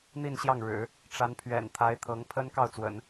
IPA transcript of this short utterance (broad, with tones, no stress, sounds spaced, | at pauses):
n̪ i˥˧ n ɕ j ɑ˥˩ ŋ ɻ ɻ̩˨˩˦ | ʈ͡ʂ a˧˥ n pʰ ɥ ɛ̰˨˩ n t̪ʰ a˧˥ ɪ̯ t̪ʰ ɤ˧˥ ŋ pʰ ə˥ n k ɑ˥˩ ʊ̯ t͡s w ə̰˨˩˦ n